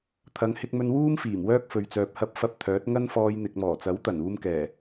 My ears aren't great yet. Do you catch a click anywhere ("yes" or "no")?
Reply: no